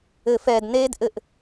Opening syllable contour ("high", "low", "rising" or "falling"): low